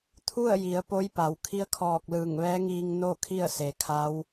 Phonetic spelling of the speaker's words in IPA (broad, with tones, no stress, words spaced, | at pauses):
t̪ʰu˥˨ə̯ji˩˧ə̯ po˧˥jpa˩w kʰi˧˥ə̯kʰɔː˧˩k̚ lɯː˧˩ŋʋɛː˧˥ŋiː˧ŋ no˥˨ kʰi˥˨ə̯se˩kʰa˧˥w